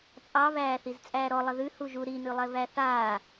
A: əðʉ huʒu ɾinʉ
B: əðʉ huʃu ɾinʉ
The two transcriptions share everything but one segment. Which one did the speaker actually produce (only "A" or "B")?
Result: A